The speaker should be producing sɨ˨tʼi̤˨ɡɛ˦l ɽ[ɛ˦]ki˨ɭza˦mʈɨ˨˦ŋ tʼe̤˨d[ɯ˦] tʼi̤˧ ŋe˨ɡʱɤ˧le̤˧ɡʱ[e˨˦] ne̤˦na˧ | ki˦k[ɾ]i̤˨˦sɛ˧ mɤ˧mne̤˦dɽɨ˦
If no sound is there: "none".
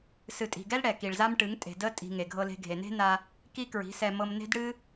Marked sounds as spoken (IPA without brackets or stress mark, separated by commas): ɛ˨, ə˦, e˨, ɹ